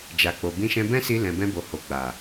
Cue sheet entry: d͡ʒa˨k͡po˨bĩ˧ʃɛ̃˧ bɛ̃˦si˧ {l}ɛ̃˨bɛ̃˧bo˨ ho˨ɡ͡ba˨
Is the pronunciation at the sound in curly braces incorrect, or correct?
correct